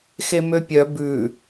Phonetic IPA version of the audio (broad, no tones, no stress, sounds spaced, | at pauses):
x e m ø pʲ œ b ʉ